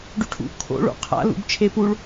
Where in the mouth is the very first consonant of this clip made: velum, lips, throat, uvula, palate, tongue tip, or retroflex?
retroflex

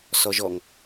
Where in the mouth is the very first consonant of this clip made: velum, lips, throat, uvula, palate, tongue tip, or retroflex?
tongue tip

